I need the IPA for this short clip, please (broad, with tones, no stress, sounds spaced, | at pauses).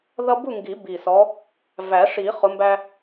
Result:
ð ʌ˦ b u˥˨ ŋ ɡ i˨˩˦ b i˨˩ s ɔ˨˦ | v æ˨˩˦ ʂ i˨˩˦ χ ʊ˨˦ m b æ˦